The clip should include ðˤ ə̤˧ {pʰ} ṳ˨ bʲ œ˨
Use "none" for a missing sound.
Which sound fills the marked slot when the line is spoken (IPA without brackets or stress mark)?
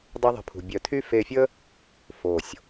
pʰ